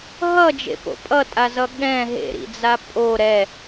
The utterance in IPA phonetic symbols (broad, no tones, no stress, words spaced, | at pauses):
ɦʌd͡ʒḛpo̰ pʼʌtʼazʌ ɠɛ̃ ɦḛɾḭd͡za pʼo ɾɛ